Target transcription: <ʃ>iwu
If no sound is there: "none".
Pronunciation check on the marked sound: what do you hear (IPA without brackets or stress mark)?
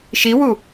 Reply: ʃ